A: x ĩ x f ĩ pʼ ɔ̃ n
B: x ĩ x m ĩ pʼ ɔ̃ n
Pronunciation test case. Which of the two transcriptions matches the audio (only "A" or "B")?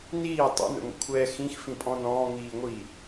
A